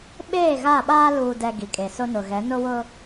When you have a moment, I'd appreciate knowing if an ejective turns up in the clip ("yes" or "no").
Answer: yes